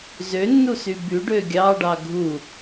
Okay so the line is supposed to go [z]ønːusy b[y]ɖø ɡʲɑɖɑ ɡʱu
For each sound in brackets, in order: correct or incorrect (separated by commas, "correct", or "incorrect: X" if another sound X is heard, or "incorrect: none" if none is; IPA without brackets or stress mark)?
correct, correct